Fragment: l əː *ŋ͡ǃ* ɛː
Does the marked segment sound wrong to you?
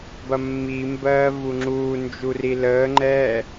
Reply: no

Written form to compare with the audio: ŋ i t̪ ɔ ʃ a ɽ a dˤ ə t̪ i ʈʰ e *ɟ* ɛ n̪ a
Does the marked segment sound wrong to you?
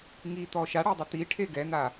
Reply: yes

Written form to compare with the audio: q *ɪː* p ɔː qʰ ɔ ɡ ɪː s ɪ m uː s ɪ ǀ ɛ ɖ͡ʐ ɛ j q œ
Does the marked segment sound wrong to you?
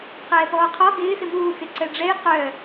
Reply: yes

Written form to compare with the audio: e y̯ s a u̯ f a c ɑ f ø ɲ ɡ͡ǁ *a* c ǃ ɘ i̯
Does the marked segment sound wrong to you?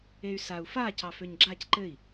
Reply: no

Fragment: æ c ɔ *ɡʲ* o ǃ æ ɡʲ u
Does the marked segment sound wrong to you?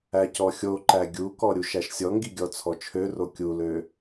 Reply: yes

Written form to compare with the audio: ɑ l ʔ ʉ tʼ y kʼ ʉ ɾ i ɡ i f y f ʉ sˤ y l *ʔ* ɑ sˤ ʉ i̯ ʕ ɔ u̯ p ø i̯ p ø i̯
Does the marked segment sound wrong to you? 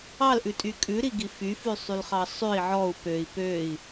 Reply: yes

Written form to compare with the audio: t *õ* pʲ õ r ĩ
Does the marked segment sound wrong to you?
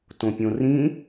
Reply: no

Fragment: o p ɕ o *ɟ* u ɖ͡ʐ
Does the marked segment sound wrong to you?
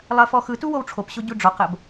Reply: no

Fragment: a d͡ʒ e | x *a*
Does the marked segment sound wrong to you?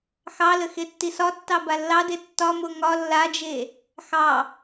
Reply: yes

